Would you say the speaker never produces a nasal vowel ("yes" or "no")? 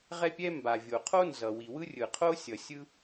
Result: yes